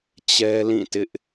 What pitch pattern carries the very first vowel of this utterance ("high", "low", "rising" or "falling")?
high